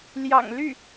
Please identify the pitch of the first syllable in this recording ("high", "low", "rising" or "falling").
low